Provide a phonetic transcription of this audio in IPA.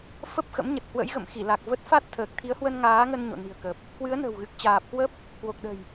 fə˦˥p̚xə̰˧˥mɲə˨˩t̚ hwə̰˧˥jɣə̰˧˨mxi˧˩la˨˩k̚ və˦˥t̚ fa˦˥t̚ t̪ʰəː˨˩k̚t̪ʰi˨˦ə̯hwə˧n ŋaː˨˦ŋə˧n ɲo̰˧˨ni̤˨˩ə̯kə˨˩p̚ | kwɨ˨˦ə̯nə̤˨˩wɣɨ˨˩k̚ t͡ɕaː˨˩p̚kwə˦˥p̚ | kwo˨˩k̚ɗə̤˨˩j

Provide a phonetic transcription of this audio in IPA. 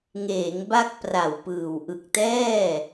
ŋeː˩˦ŋ ba˥˩k̚pra˨˩wpɯː˨˩w ʔɯ˨˩k̚tɛː˥˩

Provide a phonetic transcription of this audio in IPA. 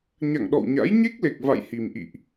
ɲa̰˧˨ŋɗɔ̰˧˨wɲa̰˧˥j ɲe˦˥k̚le˨˩k̚ va̰˧˨j hi˨˩mʔḭ˧˨ʔ

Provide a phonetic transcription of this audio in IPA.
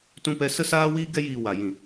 tũ˧ pɛ˧ sə˧saː˧wiː˧ ɡɛ˧jiː˨ wa˨ jĩ˨

